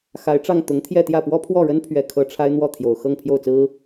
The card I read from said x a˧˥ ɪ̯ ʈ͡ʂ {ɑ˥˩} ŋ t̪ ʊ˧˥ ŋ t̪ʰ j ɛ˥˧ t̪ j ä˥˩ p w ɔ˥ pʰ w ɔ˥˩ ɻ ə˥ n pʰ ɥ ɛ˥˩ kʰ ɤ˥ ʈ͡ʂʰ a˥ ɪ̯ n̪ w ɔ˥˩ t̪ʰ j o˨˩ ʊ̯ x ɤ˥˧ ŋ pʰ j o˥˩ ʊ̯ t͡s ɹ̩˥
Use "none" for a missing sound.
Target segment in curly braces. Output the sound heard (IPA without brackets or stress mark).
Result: ɑ˥˩